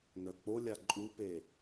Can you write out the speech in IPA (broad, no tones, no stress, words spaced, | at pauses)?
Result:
nœk͡polʲa ǃʼupe